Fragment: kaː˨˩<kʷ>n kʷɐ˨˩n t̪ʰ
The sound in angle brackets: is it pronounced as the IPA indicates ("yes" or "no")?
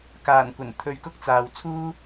no